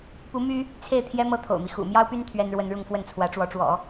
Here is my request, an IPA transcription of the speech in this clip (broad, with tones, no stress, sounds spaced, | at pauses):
p u˧˥ m y˥ | t͡sʰ e˥˩ ɪ̯ t̪ʰ j ɛ˥ m ɤ˥ t̪ʰ o̰˨˩ ʊ̯ m i˦ x ṵ˨˩ m j ɑ˥ ʊ̯ p y˥ n t̪ʰ ɥ ɛ˥ n ɻ w ə˥ n ɻ ʊ˥˧ ŋ f w ə˥˩ n t͡sʰ w ä˧˥ ʈ͡ʂ w ɔ˧˥ ʈ͡ʂ w ɔ̰˨˩˦